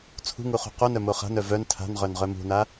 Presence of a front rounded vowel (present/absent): present